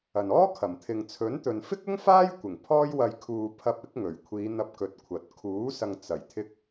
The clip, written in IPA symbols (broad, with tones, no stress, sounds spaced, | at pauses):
ɐ˨ n ɔː˥ kʰ ɐ˨˩ m t̪ʰ ɪ˨ ŋ t͡sʰ ɵ˨˥ n t̪ ɵ˨ n f ɪ˥ k̚ ʊ˥ ŋ f aː˥ j kʷ ɪ˨˩ ŋ pʰ ɔː˥ j w ɐ˧ j kʰ uː˨ pʰ ɐ˧ p̚ ɪ˨˥ k̚ ŋ ɵ˨˩ ɥ kʷʰ iː˨˧ n̪ ɐ˧ p̚ k ɵ˨ t̚ kʷʰ ɐ˨ t̚ kʰ uː˨˥ s ɐ˨ ŋ t͡s ɐ˨˩ j t̪ʰ ɪ˧ k̚